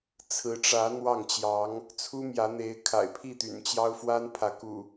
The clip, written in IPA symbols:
t͡sʰ ɹ̩˨˦ ʈ͡ʂ ä˨˦ n̪ w ɑ˥˨ ŋ t͡ɕ j ɑ˨˦ ŋ | t͡sʰ u˦ m j ä˨˦ n̪ e˨˦ ɪ̯ kʰ a̰˨˩ ɪ̯ pʰ i˥˨ t̪ y̰˨˩ n t͡ɕ j ɑ˦ ʊ̯ f w a˦ n pʰ ä˨˦ k ṵ˨˩

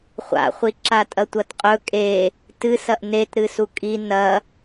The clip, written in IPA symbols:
χʷ a̰ χʷ i ǁ a tʼ ɐ tʷ ɐ t qʼ ɵ kʼ e | t ɨ s ɐ ʔ n e t ɾ ɨ s u kʼ i n ɐ

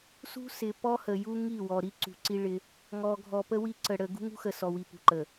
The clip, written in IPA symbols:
s ṳ˦ s ɪ˨ p ɔ˦ h ə˨ j u˦ ŋ i˦˨ w ɔ˨ ɾ i˦ ǀ ṳ˨ ǀ i˦ ɭ ɪ˦ | ŋ ɔ˨ ɡʱ ɔ˨ p ə˦ w i˦ ǀ ə˨ ɽ ə˨ ɡ ṳ˦ ŋ ṳ˦ x ə˨ s ɔ˨ w i˨ p ṳ˨ ǃ ə˨

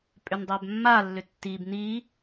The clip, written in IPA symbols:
pʼ ʏ n dˤ æ b mː a lː ʏ tː i b n i

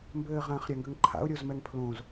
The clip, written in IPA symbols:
m b ɘː ʁ ã χ ɾʲ a ŋ ɡ ʏ ŋ ǃʰ a̰ ʊ̯ ɾʲ o z m ɛ ŋ pʰ l õ z

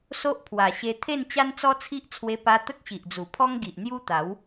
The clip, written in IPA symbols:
s o˦ ʔ pʰ w a˨˩ ɕ e˧ t̪ʰ e˥˧ n t͡ɕ a˦ n t͡s ɔ˦ t͡sʰ i˦ ʔ t͡sʰ w e˧ p a˧ t̪ ə˦ k̚ ɕ i˨ ʔ d͡z u˨˩ pʰ ɔ˦ ŋ ɡ i˨ ʔ n̪ j u˦ t̪ a˨˦ w

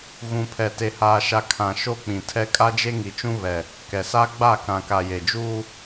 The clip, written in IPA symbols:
ɣ ũ˨ pʰ ɛ˨ t e˨ h aː˨ ʃ a˨ kʰ ã˨ ʃ o˦ k͡p ĩ˨ tʰ ɛ˦ kʼ a˦ d͡ʒ e˦ ŋ i˨ t͡ʃ ũ˦ β ɛ˨ | k ɛ˨ s a˦ ɡ͡b a˦˨ k ã˨ k a˨ j e˨ d͡ʒ uː˦

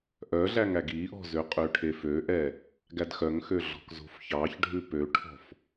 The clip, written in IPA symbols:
ʔ œ ɮ æ ŋ æ ɡ i ʔ ɔ̤ z ø qʼ ø ʈʰ e f ø ʔ ɛ | ɡ æ d x œ ŋ x ø ɮ ɔ̤ k z o̤ f ç ɑ ç ɖʱ ʉ p ø ʈʰ ɔ̤ f

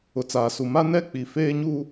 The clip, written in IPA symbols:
ʊ˨ t͡s aː˨ s u˨ m a˦ n ɛ˦ k͡p i˨ f eː˦ ɲ u˦

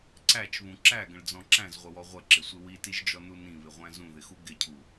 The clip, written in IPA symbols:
ǀ æ t͡ʃ β ũ ǁ æ ɡ ə̃ ɭ d͡z ɔ̃ ǁ æ̃ z ʁʷ ə w ɔ ʁʷ ə ǁ ɪ sʷ ɪ w i t i ʒ d͡ʒ ɔ n u n ĩ β ɪ ʁʷ æ̃ z ũ ð ɪ x u ɡ ɪ cʰ u

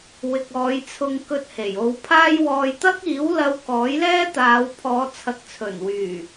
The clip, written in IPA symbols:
w ɪ˨ k̚ ɔː˨˧ j t͡sʰ ʊ˧ ŋ k ɵ˧ t̚ h e˨˩ j o˨˧ w pʰ aː˥ j w ɔː˧ j t̪ ɐ˥ k̚ iː˨˥ w l ɐ˧ w k ɔː˨˥ j l ɛː˥ t̪ aː˨˧ w pʰ ɔː˨˧ t͡sʰ ɐ˨ k̚ t͡sʰ ɵ˨˩ n w yː˨˩

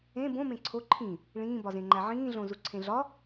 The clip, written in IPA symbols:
ẽ b õ m ẽ ǀʰ o ǃʰ ĩ | ɭ ĩː b ɒ z ẽ ŋ͡ǃ æ ʕ ĩː ɮ õ z u ǀʰ ẽ ɮ ɒ

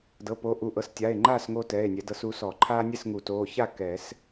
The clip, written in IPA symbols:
d ɤ˩˧˩ p o˨˦ ʔ u˩˧˩ ʔ ɤ˨˦ s tʲ a˩˧˩ e̯ ŋ͡ǃ aː˥˨ s ŋ oː˦ t ɛː˩˧˩ e̯ nʲ ɛ˨˩˦ d ɤ˨˦ s u˨˦ s ɔ˨˩˦ ǃʰ aː˦ nʲ ɛ˥˨ s ŋ u˨˩˦ t oː˩˧˩ ç a˥˨ k ɛ˨˩˦ s

